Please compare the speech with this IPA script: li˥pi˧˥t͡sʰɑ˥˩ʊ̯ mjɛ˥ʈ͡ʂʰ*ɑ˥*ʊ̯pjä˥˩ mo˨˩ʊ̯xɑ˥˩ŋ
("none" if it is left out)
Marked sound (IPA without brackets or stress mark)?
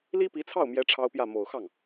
ɑ˥